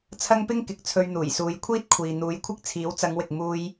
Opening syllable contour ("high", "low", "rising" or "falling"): high